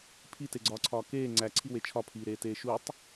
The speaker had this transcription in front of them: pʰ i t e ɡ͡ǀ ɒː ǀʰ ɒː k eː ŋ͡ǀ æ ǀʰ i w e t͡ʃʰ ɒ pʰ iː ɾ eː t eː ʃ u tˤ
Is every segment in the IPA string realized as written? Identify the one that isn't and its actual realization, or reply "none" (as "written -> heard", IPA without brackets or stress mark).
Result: none